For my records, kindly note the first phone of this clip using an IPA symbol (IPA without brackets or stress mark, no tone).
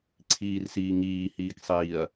ǀʰ